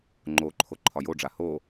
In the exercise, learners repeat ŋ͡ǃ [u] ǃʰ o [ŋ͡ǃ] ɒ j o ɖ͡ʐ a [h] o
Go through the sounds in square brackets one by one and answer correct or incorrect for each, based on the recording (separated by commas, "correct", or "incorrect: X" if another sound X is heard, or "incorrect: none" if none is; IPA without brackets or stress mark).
incorrect: o, incorrect: ǃʰ, correct